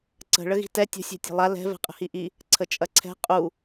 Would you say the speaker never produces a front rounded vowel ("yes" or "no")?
yes